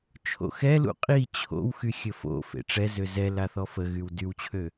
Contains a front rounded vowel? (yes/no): yes